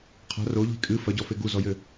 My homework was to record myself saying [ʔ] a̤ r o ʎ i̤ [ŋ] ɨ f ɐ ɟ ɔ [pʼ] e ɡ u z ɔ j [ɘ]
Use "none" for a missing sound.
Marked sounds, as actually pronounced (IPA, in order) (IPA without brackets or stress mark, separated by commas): qʰ, kʼ, f, ɘ